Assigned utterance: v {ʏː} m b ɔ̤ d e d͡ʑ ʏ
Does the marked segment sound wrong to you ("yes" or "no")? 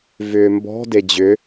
no